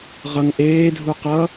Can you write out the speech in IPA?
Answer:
ʁ ʌ ŋ ʔ eː dʱ u q ʌ

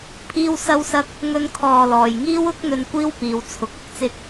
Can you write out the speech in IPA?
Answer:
pʰ iː˥ w s ɐ˥ w s ɐ˥ k̚ | ŋ ɵ˥ n kʰ ɔː˧ l ɔː˨ j ŋ iː˥ w ʊ˥ k̚ n̪ ɵ˧ n kʷ iː˥ w p iː˨˧ w t͡sʰ ʊ˨˥ k̚ ɐ˨ k̚ t͡s ɪ˥ k̚

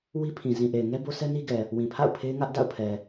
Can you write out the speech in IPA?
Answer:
w i˦ pʰ ĩ˨ z ĩ˨ ʔ e˨ ɪ̯ ŋ ɛ˦ b o˦ s ɛ˦ n i˦ ɡ ɛ˨ | w ĩ˨ pʰ a̰˦˨ ʊ̯ pʰ e˦ ɪ̯ ŋ ä˦ ʔ d a̰˦˨ ʊ̯ pʰ ɛ˨

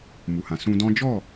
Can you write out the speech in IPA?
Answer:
m u˨ h ã˨ s ũ˧ d ɔ̃˦ d͡ʒ ɔ˦˨

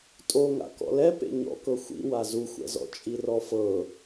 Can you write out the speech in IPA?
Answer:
tʼ o ŋ a̰ k ɔ̰ l ɛ p ḛ ɲ ɔ̰ k ɤ xʷ ḭ w a z u xʷ ɛ̰ z ɔ̰ t͡ʃʼ i r ɔ f ɤ

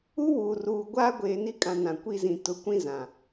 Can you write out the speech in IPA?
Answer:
u˦ w uː˨ r uː˨ ɡʷ aː˦ ɡʷ eː˨ n i˦ kʼ ã˨ n ã˨ kʷ i˦ z ĩ˨ t ʊ˨˦ kʷ ĩ˦ z ã˨

